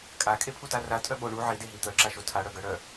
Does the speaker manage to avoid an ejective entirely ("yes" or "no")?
no